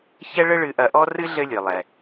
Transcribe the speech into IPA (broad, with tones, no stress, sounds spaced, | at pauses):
ç ɛ˥ ɭ ɘ˥ ɭ ɨ˧ ʔ ɐ˧ ʔ ɔ˥ r ɨ˥ ɮ ɘ˧ lʲ ɨ˩ lˠ ɛ˩